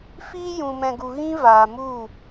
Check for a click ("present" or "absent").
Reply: absent